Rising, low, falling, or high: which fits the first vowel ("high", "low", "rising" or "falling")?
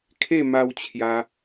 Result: falling